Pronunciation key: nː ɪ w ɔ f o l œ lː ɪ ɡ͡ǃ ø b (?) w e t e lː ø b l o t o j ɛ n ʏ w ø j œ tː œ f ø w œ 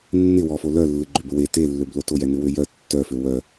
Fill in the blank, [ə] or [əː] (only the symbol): ə